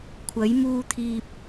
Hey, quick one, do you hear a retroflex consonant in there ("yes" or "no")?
no